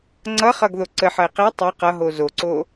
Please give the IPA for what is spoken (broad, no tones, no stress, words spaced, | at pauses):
ŋ͡ǀʌχʌɡ ðoǀəħʌɪ̯ qe tˤe qʌɦo zoǀo